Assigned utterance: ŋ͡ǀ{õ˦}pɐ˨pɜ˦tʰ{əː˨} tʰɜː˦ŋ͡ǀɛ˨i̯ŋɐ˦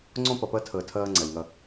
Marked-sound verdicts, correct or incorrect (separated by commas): correct, correct